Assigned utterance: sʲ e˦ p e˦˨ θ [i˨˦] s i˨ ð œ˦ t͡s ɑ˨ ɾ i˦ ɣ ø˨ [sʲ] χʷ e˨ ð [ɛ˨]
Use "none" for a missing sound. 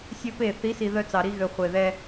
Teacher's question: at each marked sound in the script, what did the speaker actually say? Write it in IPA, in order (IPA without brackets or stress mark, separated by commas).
i˨˦, none, ɛ˦